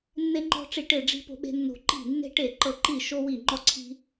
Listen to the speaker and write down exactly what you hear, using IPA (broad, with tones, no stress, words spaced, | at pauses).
nːe˧ŋ͡ǃɔ̤˧ ʈ͡ʂi˧˩ʈe˧˩ɖ͡ʐi̤˧ po̤˧ɓe̤˧nːo̤˧˩ ǃi̤˧˩nːe̤˧ʈe˧˩ ǃɤ˧˩ǃi˧˩ ʃo˧wi˧˩ŋ͡ǃɔ˧ǀʰi̤˧